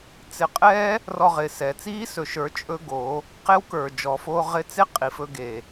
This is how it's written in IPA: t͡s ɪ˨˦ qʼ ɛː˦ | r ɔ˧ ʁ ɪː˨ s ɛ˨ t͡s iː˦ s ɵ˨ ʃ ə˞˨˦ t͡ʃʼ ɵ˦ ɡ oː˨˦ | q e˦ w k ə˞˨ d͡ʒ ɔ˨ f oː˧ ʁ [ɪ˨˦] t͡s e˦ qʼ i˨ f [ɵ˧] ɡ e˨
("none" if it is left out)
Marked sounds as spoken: ɪ˧, ɵ˧

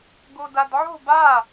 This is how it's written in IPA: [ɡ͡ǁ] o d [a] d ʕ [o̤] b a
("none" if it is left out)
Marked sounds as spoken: ɡ, a, o̤

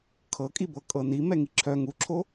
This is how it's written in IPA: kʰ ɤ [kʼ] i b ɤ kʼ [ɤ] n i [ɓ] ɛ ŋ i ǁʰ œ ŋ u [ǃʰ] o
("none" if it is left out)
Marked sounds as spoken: kʼ, ɤ, m, ǁʰ

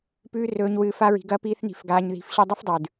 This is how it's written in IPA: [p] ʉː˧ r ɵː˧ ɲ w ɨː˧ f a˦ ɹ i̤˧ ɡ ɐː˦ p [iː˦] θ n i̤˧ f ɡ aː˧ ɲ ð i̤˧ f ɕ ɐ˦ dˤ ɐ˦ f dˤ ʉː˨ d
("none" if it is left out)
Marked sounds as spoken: p, iː˦

